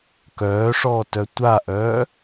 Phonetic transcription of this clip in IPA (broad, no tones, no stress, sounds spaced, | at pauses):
k œː ʂ ɔː t œ tʷ a ʔ œː